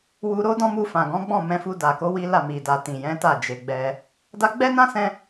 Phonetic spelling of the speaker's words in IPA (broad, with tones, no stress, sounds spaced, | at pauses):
w u˧ ɾ o˦ d ɔ̃˦ m u˧ f ã˨ ɡ ɔ̃˨˦ ɡ͡b ɔ̃˦˨ m ɛ̃˧ f u˧ d a˨ k o˨˦ w i˦ l a˦˨ m i˨ d a˨ t ĩ˨ j ɛ̃˨˦ t a˦˨ d͡ʒ e˨ ɡ͡b ɛ˧ | d a˧ ɡ͡b ɛ˦ n ã˦ s ɛ̃˧